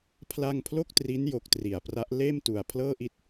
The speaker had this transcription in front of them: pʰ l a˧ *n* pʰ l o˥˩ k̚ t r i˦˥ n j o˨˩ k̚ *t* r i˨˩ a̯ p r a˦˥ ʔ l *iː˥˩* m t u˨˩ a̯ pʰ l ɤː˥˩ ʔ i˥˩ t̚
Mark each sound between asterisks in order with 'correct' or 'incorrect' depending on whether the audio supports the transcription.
incorrect, correct, incorrect

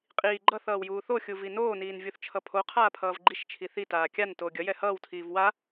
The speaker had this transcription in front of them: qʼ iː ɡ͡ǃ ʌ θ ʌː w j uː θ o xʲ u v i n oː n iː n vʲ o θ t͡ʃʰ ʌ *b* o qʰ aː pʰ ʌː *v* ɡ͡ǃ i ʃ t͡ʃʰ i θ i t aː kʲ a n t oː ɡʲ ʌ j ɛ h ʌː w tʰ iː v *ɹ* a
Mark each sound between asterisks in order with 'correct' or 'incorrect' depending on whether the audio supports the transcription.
incorrect, correct, incorrect

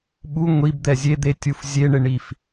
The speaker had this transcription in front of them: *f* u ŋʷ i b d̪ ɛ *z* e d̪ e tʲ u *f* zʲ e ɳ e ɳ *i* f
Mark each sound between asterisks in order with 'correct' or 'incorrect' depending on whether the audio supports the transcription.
incorrect, incorrect, correct, correct

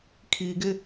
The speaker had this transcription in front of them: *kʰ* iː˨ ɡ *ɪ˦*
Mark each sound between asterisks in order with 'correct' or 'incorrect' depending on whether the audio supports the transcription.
correct, correct

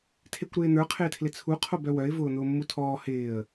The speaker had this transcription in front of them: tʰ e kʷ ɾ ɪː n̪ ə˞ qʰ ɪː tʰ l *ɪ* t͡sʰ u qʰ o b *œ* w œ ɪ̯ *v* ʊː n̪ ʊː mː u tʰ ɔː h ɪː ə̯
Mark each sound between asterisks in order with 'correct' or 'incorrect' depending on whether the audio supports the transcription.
correct, correct, correct

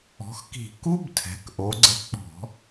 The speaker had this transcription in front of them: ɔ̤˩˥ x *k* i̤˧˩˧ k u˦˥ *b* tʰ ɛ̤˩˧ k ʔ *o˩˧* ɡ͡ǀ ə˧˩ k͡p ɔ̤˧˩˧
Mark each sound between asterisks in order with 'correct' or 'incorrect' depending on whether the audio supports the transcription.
correct, correct, correct

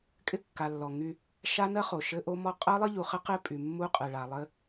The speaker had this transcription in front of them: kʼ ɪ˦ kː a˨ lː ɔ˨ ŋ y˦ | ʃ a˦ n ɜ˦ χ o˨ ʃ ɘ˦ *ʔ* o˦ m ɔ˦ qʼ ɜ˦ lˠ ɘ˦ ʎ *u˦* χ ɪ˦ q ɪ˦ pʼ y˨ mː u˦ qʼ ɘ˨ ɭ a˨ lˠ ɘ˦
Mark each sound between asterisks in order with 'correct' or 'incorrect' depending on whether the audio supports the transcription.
correct, incorrect

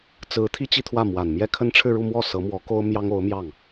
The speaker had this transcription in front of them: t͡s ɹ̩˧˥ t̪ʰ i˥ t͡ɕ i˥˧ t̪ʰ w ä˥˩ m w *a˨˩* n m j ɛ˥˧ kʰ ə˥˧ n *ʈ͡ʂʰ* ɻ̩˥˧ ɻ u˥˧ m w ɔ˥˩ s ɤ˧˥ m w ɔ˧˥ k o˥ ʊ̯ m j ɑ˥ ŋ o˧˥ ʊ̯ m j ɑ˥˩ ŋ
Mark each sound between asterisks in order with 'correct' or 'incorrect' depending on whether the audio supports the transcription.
correct, correct

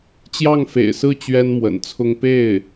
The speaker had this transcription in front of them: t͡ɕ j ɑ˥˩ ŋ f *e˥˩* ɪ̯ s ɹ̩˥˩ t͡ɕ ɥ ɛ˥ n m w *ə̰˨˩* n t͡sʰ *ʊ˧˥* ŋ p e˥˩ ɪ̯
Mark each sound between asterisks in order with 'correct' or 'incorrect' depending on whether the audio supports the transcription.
incorrect, correct, incorrect

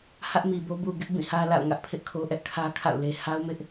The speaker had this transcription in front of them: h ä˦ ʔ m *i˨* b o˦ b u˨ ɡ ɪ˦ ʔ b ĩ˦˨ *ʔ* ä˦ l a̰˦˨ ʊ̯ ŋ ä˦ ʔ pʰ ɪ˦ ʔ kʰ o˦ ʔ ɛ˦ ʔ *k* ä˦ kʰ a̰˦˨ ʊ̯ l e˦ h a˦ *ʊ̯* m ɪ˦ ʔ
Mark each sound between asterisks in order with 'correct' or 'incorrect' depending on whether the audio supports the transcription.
correct, incorrect, incorrect, correct

